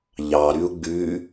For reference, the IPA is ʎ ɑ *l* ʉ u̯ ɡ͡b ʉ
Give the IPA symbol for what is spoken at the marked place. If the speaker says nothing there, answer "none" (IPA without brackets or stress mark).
ɾ